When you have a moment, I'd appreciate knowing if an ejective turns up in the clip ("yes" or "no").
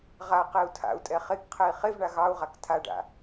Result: yes